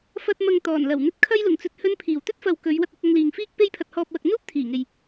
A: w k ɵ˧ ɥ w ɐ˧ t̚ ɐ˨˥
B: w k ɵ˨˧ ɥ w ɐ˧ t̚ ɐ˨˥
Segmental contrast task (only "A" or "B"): B